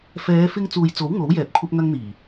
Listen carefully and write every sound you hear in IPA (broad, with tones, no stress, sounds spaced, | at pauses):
f ɛː˨˧ f ɪ˧ ŋ t͡s uː˨ j t͡s o˨˥ w ŋ o˨˥ w j ɛː˨ p̚ kʷʰ ɐ˥ p̚ ŋ ɐ˥ ŋ n̪ iː˨˩